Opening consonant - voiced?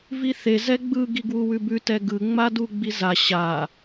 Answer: yes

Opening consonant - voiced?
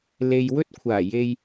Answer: yes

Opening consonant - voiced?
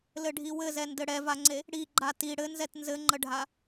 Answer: yes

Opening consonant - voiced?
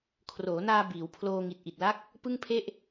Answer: no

